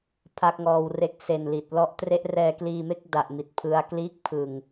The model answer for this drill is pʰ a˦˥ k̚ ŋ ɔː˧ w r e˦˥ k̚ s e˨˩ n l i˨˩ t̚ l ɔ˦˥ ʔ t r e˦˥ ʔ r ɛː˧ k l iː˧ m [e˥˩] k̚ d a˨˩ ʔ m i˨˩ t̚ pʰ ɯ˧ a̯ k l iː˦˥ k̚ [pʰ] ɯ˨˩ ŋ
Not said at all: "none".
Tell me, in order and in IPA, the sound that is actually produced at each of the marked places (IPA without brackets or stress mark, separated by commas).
e˥˩, pʰ